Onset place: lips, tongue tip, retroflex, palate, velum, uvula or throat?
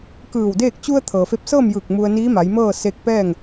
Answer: velum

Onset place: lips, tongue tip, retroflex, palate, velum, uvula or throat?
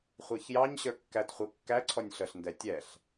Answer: uvula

